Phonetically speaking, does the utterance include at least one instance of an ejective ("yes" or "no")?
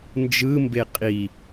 yes